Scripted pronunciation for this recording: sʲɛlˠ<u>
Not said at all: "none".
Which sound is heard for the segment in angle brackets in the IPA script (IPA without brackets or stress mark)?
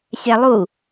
u